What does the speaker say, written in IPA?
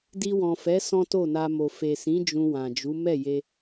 di˧wɔ̃˨fɛ˨˦ sɔ̃˦to˦˨na˧mo˨ fe˨sĩ˨˦ d͡ʒũ˧wã˨d͡ʒu˨˦ mɛ˦˨je˧

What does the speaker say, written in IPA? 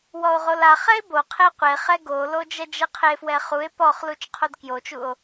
wɔo̯ʁolaχɛe̯ boqʰe qʷeχɛ ɡolo d͡ʒɛd͡ʒɛqʰefwɛ χue̯ pɔχ lut͡ʃqʰodkjot͡ʃuo̯

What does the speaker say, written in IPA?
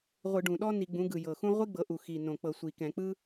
ʁʷɯ˧˩˧ɖũ˨˩ɗɔ˥ ni˧˩˧ɡ͡bũ˩˥ ɡɯ˨˩jɤ˨˩xũ˥ ʁʷi˥ɡ͡bɤ˩˥ ʔu˨˩xi˨˩nõ˨˩k͡pɤ˧˩˧ sʷi˨˩kɛ̃˧˩˧k͡pɯ˥

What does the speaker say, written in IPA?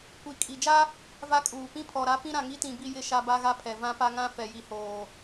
kʷi˨ kʼi˨ d͡ʒa˦ | va˦kʼuː˨ pĩ˦pʰɔ˨ɾa˦ pĩ˦ɾã˨ŋi˦tĩ˨ bi˦jɪ˦˨ʃa˦ ba˦ɣa˦pʰɛ˨ vã˦pa˦ŋã˦ fɛ˨ji˨hoː˨

